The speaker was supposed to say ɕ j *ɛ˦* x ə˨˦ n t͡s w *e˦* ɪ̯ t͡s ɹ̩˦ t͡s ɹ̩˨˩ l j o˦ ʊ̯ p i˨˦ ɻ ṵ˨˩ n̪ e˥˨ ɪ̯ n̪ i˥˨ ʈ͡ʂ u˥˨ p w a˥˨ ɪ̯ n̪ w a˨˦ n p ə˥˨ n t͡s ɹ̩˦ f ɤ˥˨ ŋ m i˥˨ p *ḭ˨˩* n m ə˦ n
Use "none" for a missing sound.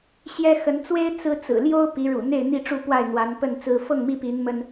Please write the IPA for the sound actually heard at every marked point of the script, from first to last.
ɛ˦, e˦, i˨˦

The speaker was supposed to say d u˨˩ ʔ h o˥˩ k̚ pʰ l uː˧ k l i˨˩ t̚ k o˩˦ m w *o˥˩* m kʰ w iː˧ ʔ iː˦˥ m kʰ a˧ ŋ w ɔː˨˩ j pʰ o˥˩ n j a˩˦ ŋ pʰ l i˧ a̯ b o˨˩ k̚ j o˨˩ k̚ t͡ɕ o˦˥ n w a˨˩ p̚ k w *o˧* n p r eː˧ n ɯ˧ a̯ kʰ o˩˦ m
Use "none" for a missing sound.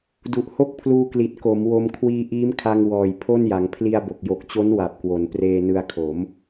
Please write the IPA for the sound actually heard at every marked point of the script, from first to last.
o˧, o˩˦

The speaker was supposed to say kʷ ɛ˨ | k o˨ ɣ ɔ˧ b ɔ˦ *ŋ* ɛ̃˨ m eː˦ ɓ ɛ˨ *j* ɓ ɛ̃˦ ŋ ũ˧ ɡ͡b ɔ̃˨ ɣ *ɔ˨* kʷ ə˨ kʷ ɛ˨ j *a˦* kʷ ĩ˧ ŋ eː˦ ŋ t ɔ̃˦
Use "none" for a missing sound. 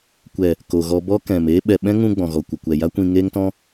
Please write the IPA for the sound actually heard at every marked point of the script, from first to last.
k, none, ɔ˨, a˦

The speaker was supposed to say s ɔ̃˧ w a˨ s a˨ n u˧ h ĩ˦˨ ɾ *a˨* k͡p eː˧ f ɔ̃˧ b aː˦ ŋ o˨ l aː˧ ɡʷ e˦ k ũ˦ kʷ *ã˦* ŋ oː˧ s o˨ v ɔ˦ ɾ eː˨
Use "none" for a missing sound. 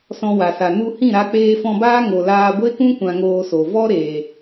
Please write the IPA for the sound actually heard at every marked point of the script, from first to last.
a˧, ã˧

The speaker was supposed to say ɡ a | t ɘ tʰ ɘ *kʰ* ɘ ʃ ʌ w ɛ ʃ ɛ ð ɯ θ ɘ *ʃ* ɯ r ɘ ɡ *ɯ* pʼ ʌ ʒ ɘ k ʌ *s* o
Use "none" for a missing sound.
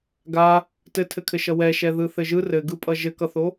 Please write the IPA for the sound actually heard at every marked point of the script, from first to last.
kʰ, ʒ, ɯ, θ

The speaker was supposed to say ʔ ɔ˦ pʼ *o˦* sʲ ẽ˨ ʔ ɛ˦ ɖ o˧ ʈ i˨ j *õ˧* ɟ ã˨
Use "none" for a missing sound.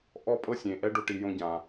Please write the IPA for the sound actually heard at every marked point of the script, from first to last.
ɤ˦, õ˧

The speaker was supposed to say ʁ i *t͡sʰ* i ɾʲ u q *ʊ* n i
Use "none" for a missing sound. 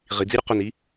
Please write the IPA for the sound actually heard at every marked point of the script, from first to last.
d͡z, ʊ

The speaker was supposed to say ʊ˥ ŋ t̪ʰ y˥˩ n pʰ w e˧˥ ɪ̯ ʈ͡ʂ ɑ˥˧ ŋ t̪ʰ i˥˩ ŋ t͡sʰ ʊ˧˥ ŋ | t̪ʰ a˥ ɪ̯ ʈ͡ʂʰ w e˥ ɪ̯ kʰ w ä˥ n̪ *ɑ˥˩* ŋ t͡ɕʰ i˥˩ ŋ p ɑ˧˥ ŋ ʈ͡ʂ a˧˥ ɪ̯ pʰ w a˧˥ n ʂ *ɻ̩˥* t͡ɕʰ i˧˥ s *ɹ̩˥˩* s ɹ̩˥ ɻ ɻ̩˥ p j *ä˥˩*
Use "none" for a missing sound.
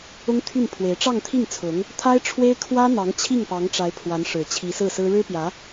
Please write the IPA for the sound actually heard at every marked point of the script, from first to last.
ɑ˧˥, ɻ̩˨˩, ɹ̩˥˩, ä˧˥

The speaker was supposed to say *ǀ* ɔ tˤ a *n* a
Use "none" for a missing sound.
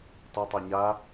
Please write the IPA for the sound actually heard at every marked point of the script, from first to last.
t, ɲ

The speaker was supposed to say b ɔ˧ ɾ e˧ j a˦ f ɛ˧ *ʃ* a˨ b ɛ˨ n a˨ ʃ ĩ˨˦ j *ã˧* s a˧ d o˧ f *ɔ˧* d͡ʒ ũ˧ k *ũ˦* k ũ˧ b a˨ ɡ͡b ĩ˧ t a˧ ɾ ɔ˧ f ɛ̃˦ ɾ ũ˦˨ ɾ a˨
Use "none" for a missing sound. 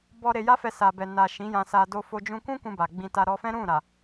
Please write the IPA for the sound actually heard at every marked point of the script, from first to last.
s, ã˧, o˧, ũ˦

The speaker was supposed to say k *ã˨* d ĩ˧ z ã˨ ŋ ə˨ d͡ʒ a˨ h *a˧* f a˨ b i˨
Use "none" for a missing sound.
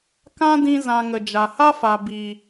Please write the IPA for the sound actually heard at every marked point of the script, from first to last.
ã˦, a˦

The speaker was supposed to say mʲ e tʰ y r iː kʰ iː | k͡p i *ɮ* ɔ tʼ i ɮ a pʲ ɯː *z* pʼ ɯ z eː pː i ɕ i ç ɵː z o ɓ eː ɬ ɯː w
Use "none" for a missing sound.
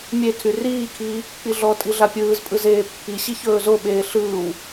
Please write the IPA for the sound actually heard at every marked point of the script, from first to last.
ɮ, z

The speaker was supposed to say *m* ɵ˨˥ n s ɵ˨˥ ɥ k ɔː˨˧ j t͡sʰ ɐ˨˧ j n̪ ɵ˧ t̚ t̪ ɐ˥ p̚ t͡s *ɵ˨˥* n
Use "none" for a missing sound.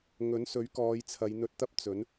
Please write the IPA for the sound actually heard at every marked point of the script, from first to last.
ŋ, ɵ˨˥

